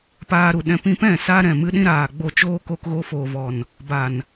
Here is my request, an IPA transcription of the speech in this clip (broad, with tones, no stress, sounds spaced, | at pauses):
p aː˧ ɾ u˨ ɗ ɛ̃˧ p ĩ˧ p ɛ̃˦˨ s a˦ ɾ ɛ̃˦˨ m ɨ˦ ɗ ĩ˦ ɾ aː˨ ɡ͡b o˦˨ t͡ʃ oː˦ k o˧ k ɣ o˧ f oː˨ v ɔ˨ n | b a˨ n